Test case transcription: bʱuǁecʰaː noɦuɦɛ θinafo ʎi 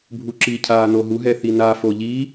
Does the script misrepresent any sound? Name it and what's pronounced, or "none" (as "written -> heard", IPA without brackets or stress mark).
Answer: e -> i